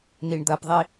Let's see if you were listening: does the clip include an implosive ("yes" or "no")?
no